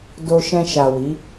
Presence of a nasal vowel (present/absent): present